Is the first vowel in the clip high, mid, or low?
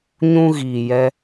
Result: high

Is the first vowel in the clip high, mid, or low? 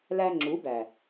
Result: low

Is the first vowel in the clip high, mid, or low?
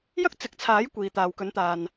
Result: low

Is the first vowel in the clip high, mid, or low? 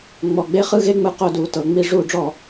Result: mid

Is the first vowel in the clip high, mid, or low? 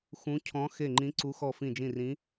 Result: high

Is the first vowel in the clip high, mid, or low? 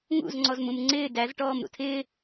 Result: high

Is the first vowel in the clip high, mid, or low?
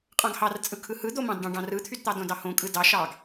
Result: low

